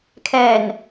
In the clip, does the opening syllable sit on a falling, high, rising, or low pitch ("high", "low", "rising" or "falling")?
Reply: low